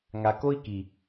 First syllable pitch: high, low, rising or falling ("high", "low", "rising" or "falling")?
low